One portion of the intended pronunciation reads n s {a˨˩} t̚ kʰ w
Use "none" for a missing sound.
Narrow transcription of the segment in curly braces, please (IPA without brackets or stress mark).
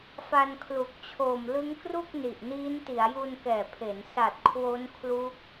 a˨˩